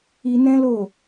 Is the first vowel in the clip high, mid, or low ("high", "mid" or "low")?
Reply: high